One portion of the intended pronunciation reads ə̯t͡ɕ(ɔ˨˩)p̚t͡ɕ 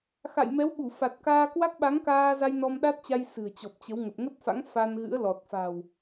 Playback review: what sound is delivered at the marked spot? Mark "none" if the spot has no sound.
ɔ˨˩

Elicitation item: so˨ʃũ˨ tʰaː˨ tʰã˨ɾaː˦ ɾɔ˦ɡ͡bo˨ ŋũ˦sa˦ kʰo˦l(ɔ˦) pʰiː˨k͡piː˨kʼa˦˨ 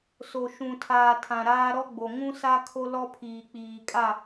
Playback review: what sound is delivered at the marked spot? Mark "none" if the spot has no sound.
ɔ˦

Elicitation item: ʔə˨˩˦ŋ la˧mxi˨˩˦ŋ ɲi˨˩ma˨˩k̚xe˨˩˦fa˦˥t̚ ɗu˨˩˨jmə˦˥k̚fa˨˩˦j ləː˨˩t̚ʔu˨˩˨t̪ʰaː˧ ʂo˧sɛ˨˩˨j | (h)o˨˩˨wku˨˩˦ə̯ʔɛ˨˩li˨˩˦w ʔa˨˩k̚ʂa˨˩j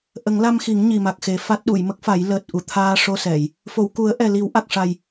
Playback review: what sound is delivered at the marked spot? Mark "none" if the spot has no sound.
f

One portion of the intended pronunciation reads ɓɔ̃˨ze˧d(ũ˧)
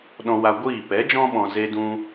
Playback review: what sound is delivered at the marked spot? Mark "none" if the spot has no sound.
ũ˧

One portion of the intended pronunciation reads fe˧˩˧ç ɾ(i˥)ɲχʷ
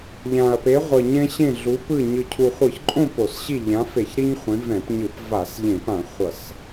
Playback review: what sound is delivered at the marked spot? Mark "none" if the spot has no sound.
i˥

